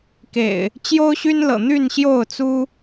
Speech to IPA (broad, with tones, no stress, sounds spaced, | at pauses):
k ḛ˨˩ ɪ̯ | t͡ɕ j o˦ ʊ̯ ɕ y˦ n l ɤ̰˨˩ n̪ y˥˨ n ɕ j o˥˨ ʊ̯ t͡s u˦